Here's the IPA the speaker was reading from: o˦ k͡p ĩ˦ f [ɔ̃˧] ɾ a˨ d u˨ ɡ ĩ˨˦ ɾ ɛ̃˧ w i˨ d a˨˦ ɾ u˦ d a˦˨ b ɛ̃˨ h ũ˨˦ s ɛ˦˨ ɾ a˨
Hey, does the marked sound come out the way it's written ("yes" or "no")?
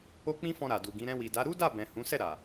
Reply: yes